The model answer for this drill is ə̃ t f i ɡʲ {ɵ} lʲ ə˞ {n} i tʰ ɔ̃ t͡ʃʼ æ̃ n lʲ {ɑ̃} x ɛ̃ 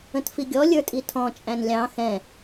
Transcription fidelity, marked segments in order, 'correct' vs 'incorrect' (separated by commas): incorrect, incorrect, correct